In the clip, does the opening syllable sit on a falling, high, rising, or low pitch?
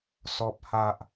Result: low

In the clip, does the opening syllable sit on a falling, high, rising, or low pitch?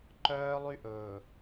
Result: high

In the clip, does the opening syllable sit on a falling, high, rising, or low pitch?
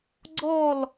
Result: falling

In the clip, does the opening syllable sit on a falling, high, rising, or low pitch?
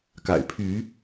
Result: low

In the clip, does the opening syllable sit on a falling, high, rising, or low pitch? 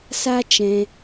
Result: high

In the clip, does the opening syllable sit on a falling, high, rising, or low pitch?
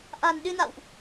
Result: low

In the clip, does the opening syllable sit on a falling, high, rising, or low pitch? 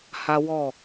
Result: high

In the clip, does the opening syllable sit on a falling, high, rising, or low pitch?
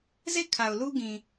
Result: falling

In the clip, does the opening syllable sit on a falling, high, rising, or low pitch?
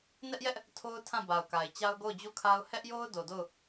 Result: high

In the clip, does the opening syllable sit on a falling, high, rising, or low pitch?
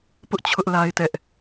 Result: high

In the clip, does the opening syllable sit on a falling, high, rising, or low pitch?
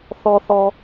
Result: low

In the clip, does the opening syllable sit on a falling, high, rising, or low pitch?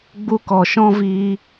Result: high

